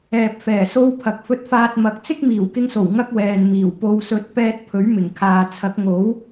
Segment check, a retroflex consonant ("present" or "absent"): absent